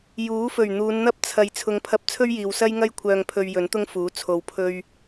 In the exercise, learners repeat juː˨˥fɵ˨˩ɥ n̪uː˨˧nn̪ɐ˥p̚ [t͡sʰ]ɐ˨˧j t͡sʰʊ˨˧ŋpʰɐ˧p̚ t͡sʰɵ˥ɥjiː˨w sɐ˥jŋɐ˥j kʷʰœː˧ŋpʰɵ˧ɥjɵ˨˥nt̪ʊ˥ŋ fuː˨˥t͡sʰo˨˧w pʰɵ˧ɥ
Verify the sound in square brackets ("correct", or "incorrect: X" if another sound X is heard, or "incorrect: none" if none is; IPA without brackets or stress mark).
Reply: correct